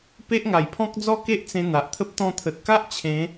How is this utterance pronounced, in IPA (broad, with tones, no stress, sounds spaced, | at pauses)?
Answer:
p e˦ ʔ ŋ a˨˩ j pʰ ɔ̃˦ k̚ d͡z ɔ˥˧ k e˦ ʔ t͡s ẽ˧ n̪ a˨ ʔ t̪ʰ ə˦ p̚ t̪ ɔ̃˧ t̪ʰ ə˨ t̚ k a˦ ʔ t͡ɕʰ ẽ˨˦